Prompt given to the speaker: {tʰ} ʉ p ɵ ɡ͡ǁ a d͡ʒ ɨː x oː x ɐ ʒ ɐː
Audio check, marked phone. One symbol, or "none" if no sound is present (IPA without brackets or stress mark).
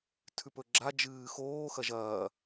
tʰ